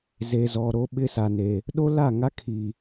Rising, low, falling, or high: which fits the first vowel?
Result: low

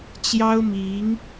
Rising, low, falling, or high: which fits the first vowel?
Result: high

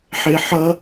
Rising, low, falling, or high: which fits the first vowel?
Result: high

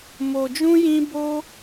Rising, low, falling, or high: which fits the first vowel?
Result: low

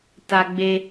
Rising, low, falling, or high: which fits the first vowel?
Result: high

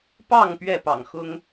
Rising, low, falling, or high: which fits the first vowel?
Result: falling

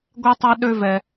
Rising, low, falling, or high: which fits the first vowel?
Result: high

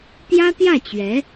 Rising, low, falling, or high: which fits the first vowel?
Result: high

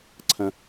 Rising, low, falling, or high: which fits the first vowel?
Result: high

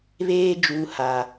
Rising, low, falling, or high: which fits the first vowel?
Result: high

